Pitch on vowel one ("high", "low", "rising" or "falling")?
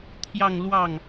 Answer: falling